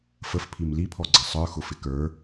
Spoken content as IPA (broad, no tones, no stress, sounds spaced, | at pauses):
f ə f pʰ i m l i pʰ ɔ ɡ͡ǀ ʌ sˤ ə˞ x ʊ f ɪ k ə˞